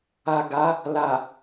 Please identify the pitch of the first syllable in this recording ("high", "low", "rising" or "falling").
low